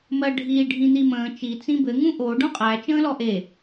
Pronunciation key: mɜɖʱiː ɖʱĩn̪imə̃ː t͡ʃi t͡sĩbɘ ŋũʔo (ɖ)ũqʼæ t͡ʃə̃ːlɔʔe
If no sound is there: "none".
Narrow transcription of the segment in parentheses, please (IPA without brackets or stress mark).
ɖ